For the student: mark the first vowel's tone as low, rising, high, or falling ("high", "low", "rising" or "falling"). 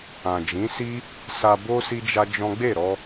low